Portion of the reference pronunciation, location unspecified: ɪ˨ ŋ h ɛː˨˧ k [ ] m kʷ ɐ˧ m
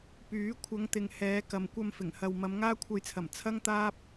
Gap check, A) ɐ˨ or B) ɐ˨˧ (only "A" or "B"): A